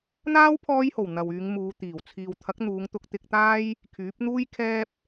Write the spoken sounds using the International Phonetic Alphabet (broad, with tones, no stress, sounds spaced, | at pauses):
n̪ aː˥ w pʰ ɔː˧ j h o˨˩ w n̪ ɐ˨ w yː˨˧ ŋ m uː˨˧ t̪ iː˨˩ w t͡sʰ iː˨ w t̪ʰ ɐ˨˥ k̚ n̪ uː˨˧ ŋ t̪ ʊ˧ k̚ t̪ ɪ˧ k̚ t̪ aː˥ j | kʰ yː˨˥ p̚ n̪ uː˥ j kʰ ɛː˥ p̚